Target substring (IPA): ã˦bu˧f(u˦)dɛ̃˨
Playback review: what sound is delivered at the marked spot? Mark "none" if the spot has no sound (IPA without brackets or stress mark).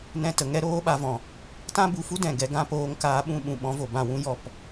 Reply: u˦